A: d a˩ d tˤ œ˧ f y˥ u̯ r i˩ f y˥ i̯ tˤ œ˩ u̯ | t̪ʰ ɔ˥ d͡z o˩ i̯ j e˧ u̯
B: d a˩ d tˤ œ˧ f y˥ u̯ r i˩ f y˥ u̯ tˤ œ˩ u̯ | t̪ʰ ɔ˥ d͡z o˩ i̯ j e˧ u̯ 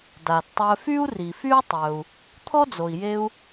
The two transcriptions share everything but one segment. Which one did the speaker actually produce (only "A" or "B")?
B